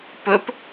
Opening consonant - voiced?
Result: no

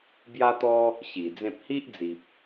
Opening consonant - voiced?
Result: yes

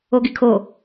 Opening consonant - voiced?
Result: yes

